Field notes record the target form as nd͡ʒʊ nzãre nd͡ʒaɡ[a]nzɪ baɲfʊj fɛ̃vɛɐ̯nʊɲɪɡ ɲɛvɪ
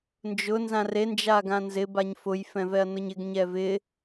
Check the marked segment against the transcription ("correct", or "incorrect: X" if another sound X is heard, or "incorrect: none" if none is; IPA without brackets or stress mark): incorrect: ã